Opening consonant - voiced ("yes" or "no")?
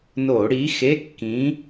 yes